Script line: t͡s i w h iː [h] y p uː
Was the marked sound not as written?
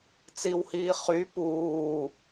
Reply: yes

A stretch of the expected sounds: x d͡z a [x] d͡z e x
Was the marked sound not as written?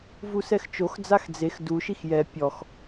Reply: no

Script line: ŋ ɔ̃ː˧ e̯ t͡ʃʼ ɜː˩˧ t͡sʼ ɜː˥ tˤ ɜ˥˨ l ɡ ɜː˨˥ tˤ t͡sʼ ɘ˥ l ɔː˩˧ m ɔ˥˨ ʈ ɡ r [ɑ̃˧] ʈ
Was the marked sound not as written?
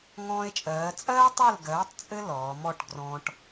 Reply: yes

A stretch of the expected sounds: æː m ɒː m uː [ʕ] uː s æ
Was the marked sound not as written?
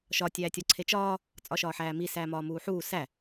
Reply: yes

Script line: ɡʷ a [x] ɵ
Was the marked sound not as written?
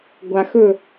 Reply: no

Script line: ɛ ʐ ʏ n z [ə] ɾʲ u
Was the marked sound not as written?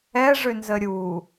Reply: no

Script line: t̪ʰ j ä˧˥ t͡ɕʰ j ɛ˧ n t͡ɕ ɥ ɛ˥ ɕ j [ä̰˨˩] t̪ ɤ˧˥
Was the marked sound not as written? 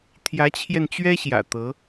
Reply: no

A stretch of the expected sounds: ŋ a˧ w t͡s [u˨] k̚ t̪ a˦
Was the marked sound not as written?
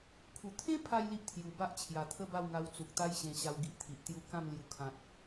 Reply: no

